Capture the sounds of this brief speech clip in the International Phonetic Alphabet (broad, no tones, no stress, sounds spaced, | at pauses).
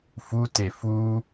f u t e f u